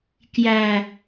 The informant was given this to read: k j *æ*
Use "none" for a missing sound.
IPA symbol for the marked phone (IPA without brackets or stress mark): æ